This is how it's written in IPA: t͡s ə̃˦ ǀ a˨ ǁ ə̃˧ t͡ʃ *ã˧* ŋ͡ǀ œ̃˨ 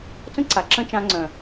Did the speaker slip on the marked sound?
no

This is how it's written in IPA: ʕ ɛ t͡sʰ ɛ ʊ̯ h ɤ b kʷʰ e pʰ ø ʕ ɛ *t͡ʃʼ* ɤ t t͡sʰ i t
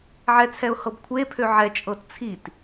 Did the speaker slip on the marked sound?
no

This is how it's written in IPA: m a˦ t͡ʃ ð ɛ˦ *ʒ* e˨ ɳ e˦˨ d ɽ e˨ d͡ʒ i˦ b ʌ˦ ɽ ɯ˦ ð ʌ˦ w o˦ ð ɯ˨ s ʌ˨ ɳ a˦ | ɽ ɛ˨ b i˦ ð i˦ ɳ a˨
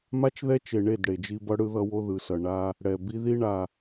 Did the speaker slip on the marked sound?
yes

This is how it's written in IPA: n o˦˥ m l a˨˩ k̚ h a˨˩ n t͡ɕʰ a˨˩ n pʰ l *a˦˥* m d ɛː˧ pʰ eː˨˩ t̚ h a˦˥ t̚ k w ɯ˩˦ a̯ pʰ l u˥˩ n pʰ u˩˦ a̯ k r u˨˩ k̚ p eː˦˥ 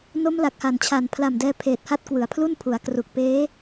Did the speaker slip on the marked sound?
yes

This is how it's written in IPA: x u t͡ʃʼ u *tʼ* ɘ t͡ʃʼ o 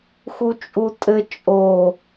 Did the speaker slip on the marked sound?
no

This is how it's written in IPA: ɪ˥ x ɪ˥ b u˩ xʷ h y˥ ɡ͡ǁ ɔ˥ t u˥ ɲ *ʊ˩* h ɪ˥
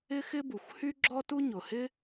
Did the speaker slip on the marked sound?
no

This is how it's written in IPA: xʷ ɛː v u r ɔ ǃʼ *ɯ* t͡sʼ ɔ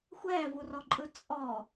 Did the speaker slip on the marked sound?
no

